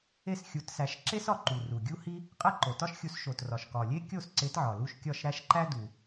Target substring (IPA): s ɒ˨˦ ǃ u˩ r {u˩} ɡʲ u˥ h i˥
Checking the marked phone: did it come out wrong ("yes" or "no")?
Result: no